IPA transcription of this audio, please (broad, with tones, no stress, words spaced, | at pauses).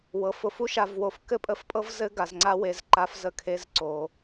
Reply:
wɤ˨fʊ˧f u˧ʃa˨vwo˨f kɘ˦pʼə˧fpʼɤ˦v zɘ˦ɡa˨zŋ͡ǀa˦we˧z ǃa˧fzə˧ kʰe˦zǀo˧